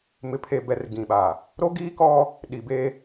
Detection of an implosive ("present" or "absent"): present